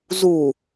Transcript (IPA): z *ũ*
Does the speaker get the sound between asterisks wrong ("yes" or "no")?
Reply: yes